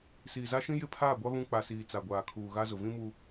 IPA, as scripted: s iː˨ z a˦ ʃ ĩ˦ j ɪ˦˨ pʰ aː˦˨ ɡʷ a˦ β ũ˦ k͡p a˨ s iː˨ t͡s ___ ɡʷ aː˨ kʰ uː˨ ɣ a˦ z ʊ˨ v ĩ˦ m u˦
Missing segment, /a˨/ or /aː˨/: a˨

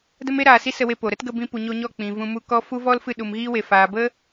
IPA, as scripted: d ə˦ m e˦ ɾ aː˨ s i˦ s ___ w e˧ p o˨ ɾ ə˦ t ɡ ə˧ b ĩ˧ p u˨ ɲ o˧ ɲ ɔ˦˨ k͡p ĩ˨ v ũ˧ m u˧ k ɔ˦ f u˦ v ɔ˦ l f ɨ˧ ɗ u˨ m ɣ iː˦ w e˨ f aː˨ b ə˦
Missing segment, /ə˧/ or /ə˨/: ə˧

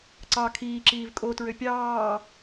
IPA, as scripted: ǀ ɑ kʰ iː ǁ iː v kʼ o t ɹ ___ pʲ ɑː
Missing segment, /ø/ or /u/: ø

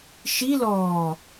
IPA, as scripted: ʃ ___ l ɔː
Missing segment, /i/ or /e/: i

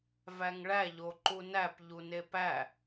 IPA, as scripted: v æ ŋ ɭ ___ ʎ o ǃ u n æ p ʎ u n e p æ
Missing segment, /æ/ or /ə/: æ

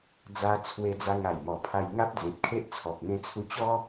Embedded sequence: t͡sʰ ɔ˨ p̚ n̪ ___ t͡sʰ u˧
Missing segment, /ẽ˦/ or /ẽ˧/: ẽ˧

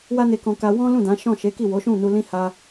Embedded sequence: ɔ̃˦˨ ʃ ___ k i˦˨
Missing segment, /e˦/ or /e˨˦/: e˨˦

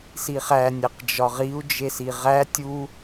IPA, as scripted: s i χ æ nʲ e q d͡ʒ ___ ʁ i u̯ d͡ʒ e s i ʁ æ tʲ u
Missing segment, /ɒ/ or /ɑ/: ɒ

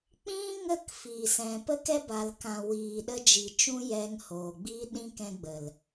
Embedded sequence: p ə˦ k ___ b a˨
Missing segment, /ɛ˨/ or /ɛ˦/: ɛ˦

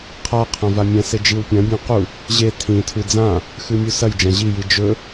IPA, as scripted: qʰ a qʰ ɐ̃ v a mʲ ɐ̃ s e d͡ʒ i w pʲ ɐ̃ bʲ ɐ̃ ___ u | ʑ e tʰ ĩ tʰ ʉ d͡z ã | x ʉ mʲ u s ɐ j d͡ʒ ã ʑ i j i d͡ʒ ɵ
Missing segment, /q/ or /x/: q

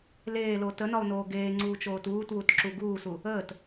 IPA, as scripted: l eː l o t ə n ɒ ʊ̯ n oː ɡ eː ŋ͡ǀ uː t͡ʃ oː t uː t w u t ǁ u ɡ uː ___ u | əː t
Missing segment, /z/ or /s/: s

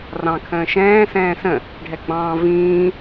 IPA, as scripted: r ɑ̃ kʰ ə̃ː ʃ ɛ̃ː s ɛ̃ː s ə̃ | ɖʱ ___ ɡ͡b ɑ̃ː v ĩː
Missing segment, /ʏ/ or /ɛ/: ɛ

